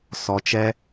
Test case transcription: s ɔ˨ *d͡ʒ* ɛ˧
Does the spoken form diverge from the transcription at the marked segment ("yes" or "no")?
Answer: yes